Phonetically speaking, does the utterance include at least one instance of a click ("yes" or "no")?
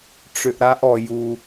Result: no